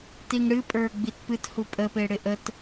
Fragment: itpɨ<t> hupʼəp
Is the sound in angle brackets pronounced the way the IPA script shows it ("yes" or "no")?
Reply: yes